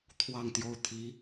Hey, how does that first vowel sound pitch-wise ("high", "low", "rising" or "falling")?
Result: falling